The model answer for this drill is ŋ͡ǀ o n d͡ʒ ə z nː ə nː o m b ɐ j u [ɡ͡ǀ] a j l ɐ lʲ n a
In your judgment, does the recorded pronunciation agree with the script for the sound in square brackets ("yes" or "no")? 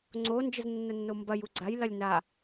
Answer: yes